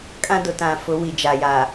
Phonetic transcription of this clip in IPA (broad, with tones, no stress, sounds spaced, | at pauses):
kʼ ã˦ d ʊ˨ t ã˨ f ʊ˨˦ w i˨ d͡ʒ a˨ j a˨